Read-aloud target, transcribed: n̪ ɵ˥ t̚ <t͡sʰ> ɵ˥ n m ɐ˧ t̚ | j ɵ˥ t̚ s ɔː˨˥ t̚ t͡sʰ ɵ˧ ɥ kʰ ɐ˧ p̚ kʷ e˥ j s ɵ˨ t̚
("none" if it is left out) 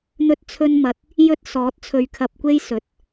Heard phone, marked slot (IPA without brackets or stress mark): t͡sʰ